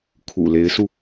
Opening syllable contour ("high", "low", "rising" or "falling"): low